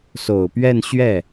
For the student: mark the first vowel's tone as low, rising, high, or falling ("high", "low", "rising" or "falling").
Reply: low